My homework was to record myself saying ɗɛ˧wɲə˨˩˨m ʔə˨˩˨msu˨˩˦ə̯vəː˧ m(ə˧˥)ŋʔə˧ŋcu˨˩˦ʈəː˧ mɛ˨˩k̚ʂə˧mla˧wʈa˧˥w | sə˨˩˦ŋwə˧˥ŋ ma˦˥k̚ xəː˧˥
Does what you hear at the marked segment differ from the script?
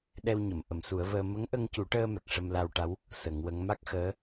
no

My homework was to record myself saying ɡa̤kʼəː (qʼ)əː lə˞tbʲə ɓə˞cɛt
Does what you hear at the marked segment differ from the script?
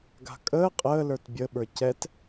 no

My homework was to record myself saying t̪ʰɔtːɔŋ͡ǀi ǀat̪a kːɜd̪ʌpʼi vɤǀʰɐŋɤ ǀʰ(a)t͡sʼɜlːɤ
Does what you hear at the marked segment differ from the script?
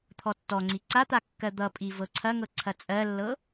yes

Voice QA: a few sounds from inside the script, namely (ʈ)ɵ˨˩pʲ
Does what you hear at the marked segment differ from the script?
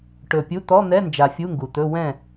no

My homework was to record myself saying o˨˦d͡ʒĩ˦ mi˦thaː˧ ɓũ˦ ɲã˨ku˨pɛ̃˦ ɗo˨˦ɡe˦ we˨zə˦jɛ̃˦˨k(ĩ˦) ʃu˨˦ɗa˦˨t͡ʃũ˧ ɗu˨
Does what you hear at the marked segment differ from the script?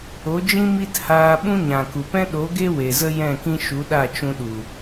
no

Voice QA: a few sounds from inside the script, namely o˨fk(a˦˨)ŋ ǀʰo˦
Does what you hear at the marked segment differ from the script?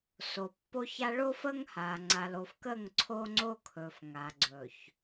yes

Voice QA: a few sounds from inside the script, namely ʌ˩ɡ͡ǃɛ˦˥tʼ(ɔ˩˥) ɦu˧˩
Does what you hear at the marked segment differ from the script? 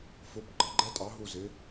yes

